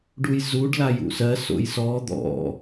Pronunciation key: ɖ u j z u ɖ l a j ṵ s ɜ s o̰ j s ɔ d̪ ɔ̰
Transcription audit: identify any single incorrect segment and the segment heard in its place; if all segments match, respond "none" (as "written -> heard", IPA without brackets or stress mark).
none